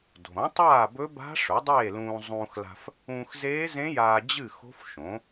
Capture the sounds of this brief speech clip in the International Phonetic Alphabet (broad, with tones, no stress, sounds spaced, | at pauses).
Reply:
dʱ õ˩˥ tˤ aː˥˨ b ɵ˦˥ b a̤˦˥ ʂ ɵ˩˥ dˤ eː˥˨ l ũː˧ zˤ ũː˧ x l a̤˧ f | ũː˧ x z eː˦˥ z ẽ˦˥ j aː˧ d͡ʑ ɨ˥˨ x o̤˦˥ f ʃ õ˩˥